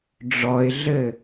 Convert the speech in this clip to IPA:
ɖ͡ʐɔɪ̯ɮɘ

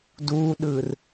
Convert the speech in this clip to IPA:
duɗɯr

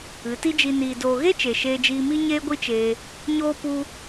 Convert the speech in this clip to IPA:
ɨ˨˦ti˦ d͡ʒi˨niː˨doː˨ ɣe˦ t͡ʃe˨ʃeː˧d͡ʒiː˧mi˦ ɲeː˦ɡʷi˦t͡ʃeː˧ | ɲoː˦pu˦

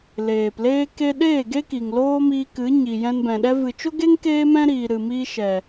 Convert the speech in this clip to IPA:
leː˨pleː˦ke˦ ɗeː˦˨ɡe˦ki˨ŋ loː˦miː˧kɨ˨˦ ɲi˨jɛ̃˧nbɛ̃˨ ɗɛ˧vɨ˨t͡ʃo˦ɡe˦ŋ keː˦mɛ̃˦ɾiː˨ ɾɨ˨miː˧ ʃɛ˨

